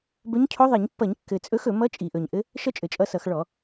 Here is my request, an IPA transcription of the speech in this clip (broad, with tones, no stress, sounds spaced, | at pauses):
b ɵ˧˥ ɲ cʰ o˧˥ ðˤ i˧˩˧ ɲ pː ʌ˧˩˧ ɲ kː ɘ˨˩ t͡sʼ ɵ˧˥ x ɵ˧˩˧ m ʌ˧˥ t͡ʃʼ i˨˩ ʔ ɵ˨˩ ɲ ʔ ɘ˧˥ | ʃ ʌ˥ t͡ʃʼ ɘ˨˩ t͡ʃʼ ʌ˧˥ s ʌ˧˩˧ x ɭ ɔ˧˩˧